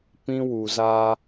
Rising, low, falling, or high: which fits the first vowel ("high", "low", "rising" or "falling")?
high